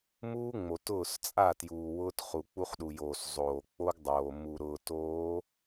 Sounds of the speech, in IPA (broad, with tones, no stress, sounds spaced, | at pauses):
m uː˦ ŋ͡m o˨ t ʊː˦˨ s t͡sʼ a˦˨ t j uː˨ w ʊː˦ t χ u˨ k͡p u˦ χ ɗ u˨ j oː˨ s zˤ oː˨ k͡p o˦ ɡ dˤ oː˨ m u˨ ɾ ʊː˨ t oː˨˦